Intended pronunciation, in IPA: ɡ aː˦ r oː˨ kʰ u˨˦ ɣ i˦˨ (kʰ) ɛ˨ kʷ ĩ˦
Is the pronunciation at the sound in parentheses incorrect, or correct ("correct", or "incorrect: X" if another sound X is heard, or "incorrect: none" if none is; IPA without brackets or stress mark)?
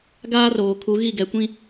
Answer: incorrect: ɡ